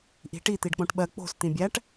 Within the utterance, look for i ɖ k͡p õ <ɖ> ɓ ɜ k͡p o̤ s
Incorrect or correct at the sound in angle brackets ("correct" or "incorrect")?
incorrect